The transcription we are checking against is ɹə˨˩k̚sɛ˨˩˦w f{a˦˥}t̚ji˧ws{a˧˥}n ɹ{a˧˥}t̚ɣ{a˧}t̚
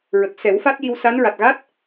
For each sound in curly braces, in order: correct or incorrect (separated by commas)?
correct, correct, incorrect, incorrect